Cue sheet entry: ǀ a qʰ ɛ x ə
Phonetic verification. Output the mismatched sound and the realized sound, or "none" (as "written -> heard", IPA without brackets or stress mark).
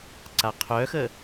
ɛ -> œ